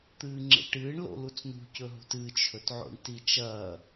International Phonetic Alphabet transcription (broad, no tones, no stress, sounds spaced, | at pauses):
t̪ ɨː ŋ͡ǁ ḛ ʈ ɨː ɳ l o̰ l u t͡s n ṳ c ɵ ɦ ṳ t ɨ t͡ʃʰ ɵ t ʕ o̰ ɳ t i t͡ʃ ɐː